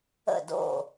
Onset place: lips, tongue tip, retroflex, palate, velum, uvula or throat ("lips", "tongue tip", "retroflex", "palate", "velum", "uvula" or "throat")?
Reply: tongue tip